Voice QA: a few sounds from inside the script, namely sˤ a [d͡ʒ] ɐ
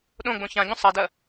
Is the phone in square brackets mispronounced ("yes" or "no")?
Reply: yes